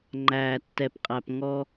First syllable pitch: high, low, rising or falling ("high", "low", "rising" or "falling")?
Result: low